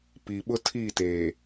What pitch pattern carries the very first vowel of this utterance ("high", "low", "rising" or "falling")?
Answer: low